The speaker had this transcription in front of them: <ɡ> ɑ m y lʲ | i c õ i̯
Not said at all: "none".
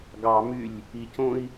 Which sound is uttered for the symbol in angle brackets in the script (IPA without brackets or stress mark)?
ɡ